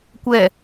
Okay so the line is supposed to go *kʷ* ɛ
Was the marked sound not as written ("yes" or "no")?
no